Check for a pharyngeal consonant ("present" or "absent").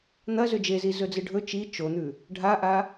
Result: absent